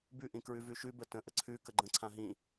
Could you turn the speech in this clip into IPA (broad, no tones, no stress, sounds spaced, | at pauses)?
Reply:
b ʉ ʔ ĩ k ɹ ʉ v ʉ ʃ ʉ b ə t ə̃ ʔ ə ǀʰ ʉ k ə ɡ͡ǃ ə̃ ǀʰ ã ɦ ĩ